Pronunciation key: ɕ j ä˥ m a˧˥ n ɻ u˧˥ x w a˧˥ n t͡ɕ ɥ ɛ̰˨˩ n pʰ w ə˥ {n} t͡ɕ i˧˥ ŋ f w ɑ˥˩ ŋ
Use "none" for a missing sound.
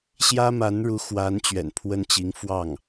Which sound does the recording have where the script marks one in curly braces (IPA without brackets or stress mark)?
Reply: n